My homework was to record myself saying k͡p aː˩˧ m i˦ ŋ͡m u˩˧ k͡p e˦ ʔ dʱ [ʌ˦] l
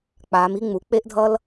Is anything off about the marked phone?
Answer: no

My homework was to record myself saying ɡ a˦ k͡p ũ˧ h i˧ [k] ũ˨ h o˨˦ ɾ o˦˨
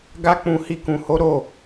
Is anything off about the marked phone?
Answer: no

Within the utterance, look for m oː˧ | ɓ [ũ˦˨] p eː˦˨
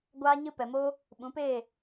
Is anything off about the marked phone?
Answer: yes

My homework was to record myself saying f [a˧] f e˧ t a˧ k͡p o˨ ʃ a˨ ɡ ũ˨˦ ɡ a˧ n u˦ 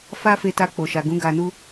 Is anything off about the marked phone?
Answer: yes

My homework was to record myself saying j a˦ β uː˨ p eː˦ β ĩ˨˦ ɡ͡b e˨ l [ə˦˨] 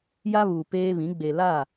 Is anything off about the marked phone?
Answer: yes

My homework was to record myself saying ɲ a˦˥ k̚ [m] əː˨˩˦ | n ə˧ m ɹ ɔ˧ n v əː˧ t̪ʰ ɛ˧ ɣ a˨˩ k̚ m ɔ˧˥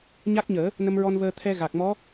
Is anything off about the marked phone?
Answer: yes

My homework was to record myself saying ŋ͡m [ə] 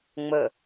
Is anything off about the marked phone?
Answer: no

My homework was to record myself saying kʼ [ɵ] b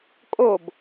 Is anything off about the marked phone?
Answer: yes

